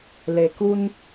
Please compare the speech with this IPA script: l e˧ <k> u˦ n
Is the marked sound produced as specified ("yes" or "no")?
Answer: yes